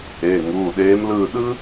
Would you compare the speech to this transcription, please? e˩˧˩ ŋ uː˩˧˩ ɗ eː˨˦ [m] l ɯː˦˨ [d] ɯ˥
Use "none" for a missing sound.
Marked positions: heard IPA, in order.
m, ɗ

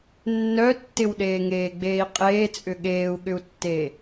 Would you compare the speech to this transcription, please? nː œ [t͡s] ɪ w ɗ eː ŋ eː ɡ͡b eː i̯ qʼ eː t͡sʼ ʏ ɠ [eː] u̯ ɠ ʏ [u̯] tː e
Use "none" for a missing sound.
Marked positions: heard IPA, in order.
tː, eː, u̯

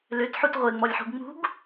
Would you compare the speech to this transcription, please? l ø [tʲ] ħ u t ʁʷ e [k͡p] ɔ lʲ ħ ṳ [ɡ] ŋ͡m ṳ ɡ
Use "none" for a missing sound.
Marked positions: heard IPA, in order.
t, ŋ͡m, ɡ

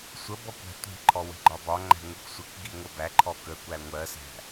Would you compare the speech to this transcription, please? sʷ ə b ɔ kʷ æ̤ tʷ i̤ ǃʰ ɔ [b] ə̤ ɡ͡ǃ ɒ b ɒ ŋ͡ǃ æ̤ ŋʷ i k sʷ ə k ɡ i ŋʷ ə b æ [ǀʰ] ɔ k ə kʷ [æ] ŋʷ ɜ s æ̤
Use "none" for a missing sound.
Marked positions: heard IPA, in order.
w, ǃʰ, æ

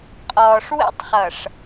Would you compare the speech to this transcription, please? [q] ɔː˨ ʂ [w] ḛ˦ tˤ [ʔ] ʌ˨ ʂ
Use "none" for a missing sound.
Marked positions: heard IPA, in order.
qʼ, w, χ

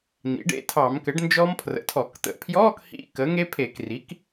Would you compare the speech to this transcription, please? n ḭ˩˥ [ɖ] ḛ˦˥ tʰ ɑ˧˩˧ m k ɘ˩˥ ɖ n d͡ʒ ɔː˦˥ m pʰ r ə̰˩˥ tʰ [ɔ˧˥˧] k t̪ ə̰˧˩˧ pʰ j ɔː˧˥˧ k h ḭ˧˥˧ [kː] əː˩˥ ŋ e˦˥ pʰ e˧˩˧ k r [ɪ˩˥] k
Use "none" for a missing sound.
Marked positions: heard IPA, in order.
ɖ, ɔ˧˩˧, k, i˩˥

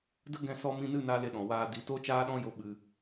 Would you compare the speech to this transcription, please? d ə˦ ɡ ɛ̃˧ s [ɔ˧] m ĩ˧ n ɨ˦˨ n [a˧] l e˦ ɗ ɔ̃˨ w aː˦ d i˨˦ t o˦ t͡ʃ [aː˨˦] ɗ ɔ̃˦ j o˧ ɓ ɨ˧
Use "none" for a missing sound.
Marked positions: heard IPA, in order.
ɔ˧, a˧, aː˦

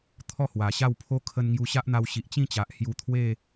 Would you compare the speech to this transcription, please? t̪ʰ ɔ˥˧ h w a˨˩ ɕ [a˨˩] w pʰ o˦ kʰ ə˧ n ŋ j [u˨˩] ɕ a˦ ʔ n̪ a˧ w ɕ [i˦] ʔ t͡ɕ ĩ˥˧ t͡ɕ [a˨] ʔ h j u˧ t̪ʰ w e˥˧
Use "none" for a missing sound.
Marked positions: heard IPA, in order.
a˥˧, u˧, i˨, a˨

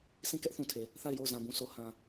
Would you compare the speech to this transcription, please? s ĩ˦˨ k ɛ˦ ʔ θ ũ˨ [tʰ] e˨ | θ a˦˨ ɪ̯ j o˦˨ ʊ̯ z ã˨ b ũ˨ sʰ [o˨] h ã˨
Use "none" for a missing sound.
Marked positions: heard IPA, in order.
tʰ, o˨

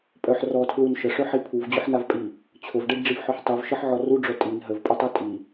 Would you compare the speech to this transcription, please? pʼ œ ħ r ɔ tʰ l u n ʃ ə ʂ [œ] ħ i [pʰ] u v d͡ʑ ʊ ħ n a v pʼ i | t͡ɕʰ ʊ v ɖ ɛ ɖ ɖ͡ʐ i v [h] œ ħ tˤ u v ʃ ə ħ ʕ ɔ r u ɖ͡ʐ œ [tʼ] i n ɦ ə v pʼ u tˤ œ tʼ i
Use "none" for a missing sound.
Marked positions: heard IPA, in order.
œ, pʰ, ħ, tʼ

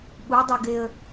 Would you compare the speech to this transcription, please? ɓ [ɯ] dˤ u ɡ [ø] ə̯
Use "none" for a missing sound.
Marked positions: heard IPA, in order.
u, e

